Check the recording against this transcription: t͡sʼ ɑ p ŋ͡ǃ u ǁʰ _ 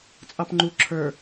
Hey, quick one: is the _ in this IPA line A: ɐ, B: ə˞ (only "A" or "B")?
B